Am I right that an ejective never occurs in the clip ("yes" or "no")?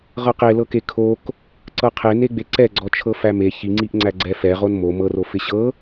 yes